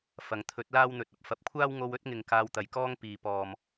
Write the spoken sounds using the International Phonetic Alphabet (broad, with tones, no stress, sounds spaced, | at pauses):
f ɐ˨ ŋ t̪ʰ ɵ˨˥ t̚ l aː˥ w n̪ ɵ˨ t̚ ɐ˧ p̚ f ɐ˨˥ p̚ kʷʰ aː˥ w ŋ o˧ w ɵ˥ t̚ ŋ ɪ˨ ŋ k aː˧ w t̪ ɐ˨ j k ɔː˥ ŋ p iː˨ p ɔː˨ m